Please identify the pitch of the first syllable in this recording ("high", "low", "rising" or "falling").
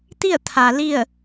falling